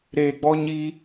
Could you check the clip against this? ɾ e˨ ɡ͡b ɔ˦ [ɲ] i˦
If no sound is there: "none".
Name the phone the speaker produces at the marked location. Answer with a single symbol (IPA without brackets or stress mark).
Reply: ɲ